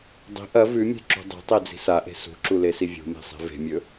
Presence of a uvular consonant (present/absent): absent